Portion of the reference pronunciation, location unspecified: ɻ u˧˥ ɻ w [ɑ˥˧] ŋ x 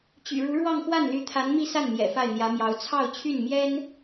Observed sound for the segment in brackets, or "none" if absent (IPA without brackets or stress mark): ɑ˥˧